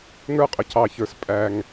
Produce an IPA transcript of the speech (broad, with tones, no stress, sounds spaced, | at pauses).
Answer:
ŋ ə˞˥ qʼ ə˩˧ cʰ ɑ˩ ç ə˞˩˧ s pʼ æ˩ ŋ